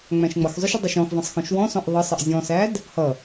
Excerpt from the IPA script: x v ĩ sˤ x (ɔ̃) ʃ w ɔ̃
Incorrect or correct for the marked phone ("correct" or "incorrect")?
correct